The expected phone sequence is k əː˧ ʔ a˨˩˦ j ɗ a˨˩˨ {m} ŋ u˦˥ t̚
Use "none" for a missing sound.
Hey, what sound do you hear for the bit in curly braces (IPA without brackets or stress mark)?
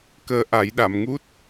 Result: m